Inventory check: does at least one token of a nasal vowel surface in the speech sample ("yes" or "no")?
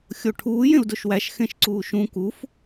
yes